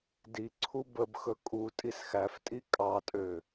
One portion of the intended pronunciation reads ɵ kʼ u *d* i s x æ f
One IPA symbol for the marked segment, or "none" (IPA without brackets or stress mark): tʼ